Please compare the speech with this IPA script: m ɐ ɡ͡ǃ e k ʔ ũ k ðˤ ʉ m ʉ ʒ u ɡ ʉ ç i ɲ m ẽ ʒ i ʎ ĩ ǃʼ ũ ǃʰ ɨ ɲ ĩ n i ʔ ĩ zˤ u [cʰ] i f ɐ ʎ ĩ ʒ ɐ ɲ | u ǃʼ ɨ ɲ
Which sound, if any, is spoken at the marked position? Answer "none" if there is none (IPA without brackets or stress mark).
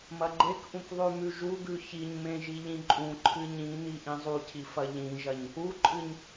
cʰ